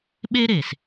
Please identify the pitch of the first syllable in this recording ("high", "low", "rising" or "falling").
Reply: high